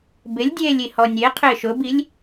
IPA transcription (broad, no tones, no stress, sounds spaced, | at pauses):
b ɪ lʲ dʲ eː lʲ i h ɔ nʲ e qʰ ɪː ʃ ʊ b i lʲ